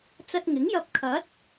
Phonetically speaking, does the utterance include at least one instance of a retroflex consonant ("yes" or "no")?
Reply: no